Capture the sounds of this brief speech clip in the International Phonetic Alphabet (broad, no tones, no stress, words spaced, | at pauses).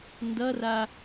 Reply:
ndʌra